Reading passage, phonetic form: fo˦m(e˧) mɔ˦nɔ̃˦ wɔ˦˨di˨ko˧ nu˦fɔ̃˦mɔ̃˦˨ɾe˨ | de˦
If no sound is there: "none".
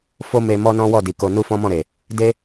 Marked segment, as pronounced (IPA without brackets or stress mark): e˧